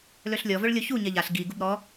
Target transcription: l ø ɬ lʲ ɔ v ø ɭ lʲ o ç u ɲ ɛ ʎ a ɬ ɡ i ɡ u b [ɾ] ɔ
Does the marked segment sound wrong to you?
no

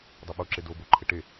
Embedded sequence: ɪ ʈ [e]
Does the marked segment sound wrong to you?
no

